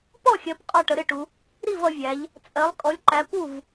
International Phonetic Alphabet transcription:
pɔ˥˩xʲɜ˩˧p qʼɒ˥˩ʈə˩˧ɾɪ˥˩ʈu˩˧ | ɾi˥˩vʌ˩˧vʲæ˩˧ʎ | t͡sʼɜ˩˧lˠ kʼɔ˩˧lʲǃæ˩˧ pu˥˩v

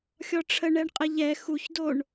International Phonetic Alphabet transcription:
xʲɔʈ͡ʂʰə ɳɛɳqʼəʎɛ xuçdoɳ

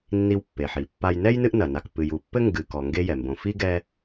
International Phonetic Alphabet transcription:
nːi˥wpːe˨ħi˨pːa˥j nɛ˥jnɨ˦ʔnɐ˩na˨k pɨ˨ju˨pːɘ˥ ŋɡɨ˨kɔ˨ ŋɡe˦jɛ˩mbõ˨fi˥ ɡɛ˦

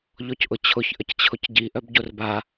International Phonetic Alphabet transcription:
ʎɔcʔʊt͡ɕʰʊç ʔəct͡ɕʰʊcɟi ʔœbɟorba

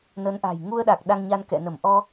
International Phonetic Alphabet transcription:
nə˨˦nʔa̤˨˩j ŋu˧ə̯ɗa˨˩k̚ ɗa˧ŋɲa˧nkɛ̰˧˨ nə˧˩mʔɔ˧

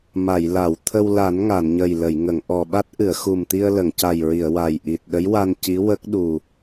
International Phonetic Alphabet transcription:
ma˨˩˨jla˨˩˨w t̪ʰə˧wla˨˩˦n ŋa˨˩˨nɲə˨˩jlə˨˩˨jŋə˨˩˨ŋ ʔɔ˨˩ ɓa˦˥t̚ʔɨ˨˩˨ə̯xu˨˩mt̪i˧ə̯ lə˨˩˨ŋca˨˩jɹi˨˩˨ə̯ wa˨˩j ʔi˨˩t̚ɗə˧˥jwa˧n ci˧˥wə˦˥k̚ɗu˨˩

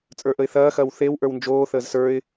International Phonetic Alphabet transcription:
t͡sʼə˞ʔəɪ̯θɐːxɐːw θew ʔə˞wnd͡ʒoːθəːz sə˞ɪ̯

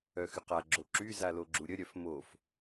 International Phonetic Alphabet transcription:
œxyqa ɡ͡ǁoǁy zaloɡ͡ǁuɾʲə ɾʲœfmof

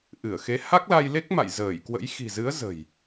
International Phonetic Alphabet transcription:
ʔɨ˧˩ə̯xe˨˦ ha˦˥k̚la˧jle˦˥k̚ ma̰˧˨jzəː˧˩jkwə̰˧˥j xi̤˨˩zɨ˨˦ə̯ zə̤˨˩j

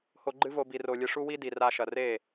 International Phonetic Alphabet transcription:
ho˧ ɡ͡ǃɨ˦vo˧ bi˨ro˨lʲɨ˨ ʂu˦wi˦ di˨ra˧ʃɐ˨ re˦˨

